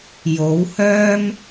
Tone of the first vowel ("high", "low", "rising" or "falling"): rising